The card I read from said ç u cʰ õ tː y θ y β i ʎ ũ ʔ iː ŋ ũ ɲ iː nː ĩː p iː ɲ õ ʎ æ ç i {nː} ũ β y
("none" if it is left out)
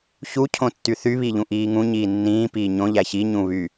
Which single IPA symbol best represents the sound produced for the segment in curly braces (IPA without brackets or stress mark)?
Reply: ɲ